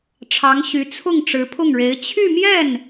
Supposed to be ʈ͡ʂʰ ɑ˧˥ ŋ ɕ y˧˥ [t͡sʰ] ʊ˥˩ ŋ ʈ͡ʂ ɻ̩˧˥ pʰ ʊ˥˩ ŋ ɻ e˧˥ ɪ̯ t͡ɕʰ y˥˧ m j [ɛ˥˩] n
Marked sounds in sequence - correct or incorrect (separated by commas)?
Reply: correct, correct